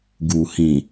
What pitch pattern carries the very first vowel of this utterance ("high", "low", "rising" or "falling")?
low